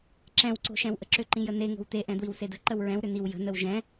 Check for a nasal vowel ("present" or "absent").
present